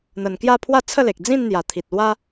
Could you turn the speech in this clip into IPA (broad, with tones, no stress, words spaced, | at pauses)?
n̪ə˨˩nkja˥˧pʰwa˥˧ t͡sʰə˥˧le˨k̚ d͡zĩ˥˧nn̪ja˨˩t̪ʰi˨t̚lwa˦